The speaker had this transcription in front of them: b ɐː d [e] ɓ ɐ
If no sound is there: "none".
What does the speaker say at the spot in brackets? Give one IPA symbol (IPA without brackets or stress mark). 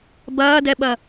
ɛ